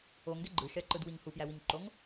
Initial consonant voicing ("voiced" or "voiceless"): voiced